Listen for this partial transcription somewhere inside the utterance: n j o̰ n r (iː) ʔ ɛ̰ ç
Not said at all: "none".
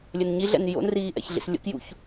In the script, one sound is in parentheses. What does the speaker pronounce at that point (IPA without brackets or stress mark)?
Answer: iː